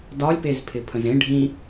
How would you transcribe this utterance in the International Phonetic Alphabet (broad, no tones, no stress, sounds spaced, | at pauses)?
d ɒ lʲ p e z pʰ ɪ pʰ ə̃ z ẽ ɖʱ ĩ